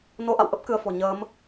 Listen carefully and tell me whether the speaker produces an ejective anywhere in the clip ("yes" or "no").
no